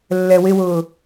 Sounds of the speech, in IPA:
lː ɛ w ɪ w ʊː

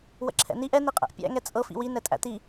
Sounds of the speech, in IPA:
w ə̰ ǁʰ ɛ̰ n i ʔ ɛ n i qʼ ɛ̰ ʔ pʲ æ̰ ŋ ɛ t͡sʼ ɤ f ḭ w i n ɛ tʼ æ̰ t i

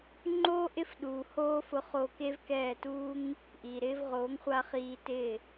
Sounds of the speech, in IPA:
ŋ͡ǃ oː˦ ʔ ɪ˦ f ɗ uː˨ h oː˦ f ʊ˧ χ o˧ k e˦ v k ɛː˦˨ t uː˦ ŋ | ʔ iː˨ ɾ ɪː˦ v ʁ oː˨˦ ŋ χʷ a˧ χ iː˧ t ɪː˦˨

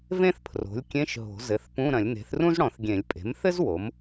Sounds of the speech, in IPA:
v ẽ˥ θ pʰ r o̤˩˥ lʲ kʲ ẽ˧˥˧ ʃ ɦ o̤˨˩˦ z ɘ˩˥ θ p ũ˧˥˧ ɾ ɐ̃˨˩˦ lʲ n e̤˩˥ θ r ũ˥ z ɽ ɔ̃˨˩˦ θ ɡʲ ẽ˨˩˦ lʲ pʼ e̤˩˥ m θ ɘ˥ z w o˩˥ m

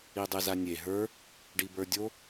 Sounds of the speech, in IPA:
i dˤ e z a nʲ e ɦ ə˞ | ɖ i b ə˞ dʲ o

